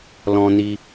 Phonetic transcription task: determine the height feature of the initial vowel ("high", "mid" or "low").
mid